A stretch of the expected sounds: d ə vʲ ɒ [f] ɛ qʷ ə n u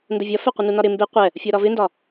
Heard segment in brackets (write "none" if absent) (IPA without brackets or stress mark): f